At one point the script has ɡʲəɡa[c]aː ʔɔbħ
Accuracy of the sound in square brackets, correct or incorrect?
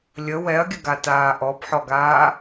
incorrect